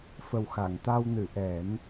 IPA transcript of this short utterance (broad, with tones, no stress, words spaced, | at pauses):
fə˨˩wxa˨˩˨ŋt̪a˧wnɨ˨˩˨ ʔɛ˨˩˦n